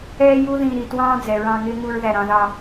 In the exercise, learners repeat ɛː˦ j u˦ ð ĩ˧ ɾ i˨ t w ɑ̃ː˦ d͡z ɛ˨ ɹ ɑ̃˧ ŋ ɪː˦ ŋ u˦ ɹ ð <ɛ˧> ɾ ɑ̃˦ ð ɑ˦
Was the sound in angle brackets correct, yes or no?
no